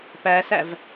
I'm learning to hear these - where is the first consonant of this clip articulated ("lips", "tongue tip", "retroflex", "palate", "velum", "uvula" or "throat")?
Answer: lips